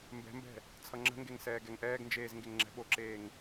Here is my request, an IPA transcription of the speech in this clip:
m b ɛ̤ m b ɛ̤ | t͡sʰ ʌ ŋ͡ǁ ə̤ ŋ ɡ e ŋ s ɛː ɡ ɛ ŋ ʔ ɛː ɡ n d͡ʒ eː z ŋ ɡ e ŋ ŋ͡ǁ ɛ̤ ɓ o ǁ eː ŋ

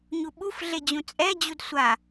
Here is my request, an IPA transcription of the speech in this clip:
ɲ u ɓ u f ɮ e d͡ʑ ũ t͡sʼ ɛ d͡ʑ u d sʷ a

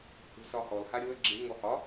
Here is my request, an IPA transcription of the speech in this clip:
h ṳ s ɒ h ɔ l h a ɾʲ o ə̯ ɡ͡ǁ ɪ ŋ ɔ h ɒ

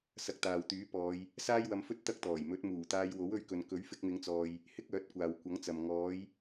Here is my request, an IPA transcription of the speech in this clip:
s ɐ˧ k̚ t̪ aː˨ w t̪ yː˨˥ p ɔː˨˧ j | s aː˥ j w ɐ˧ m f ɵ˥ t̚ t̪ ɐ˥ k̚ t̪ ɔː˨˩ j m ɵ˨˥ t̚ m uː˨˩ t̪ aː˧ j w o˨˥ w ɵ˧ ɥ k ɵ˨ n k ɵ˨˥ ɥ f ɪ˧ k̚ m ɪ˨˧ ŋ t͡s ɔː˨ j | h ɪ˥ k̚ œː˨˥ t̚ kʷ aː˨ w kʷ ɐ˨˥ ŋ t͡s ɐ˨ m ŋ ɔː˨˥ j

